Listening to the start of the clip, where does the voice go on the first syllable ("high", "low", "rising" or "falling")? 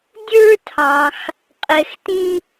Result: high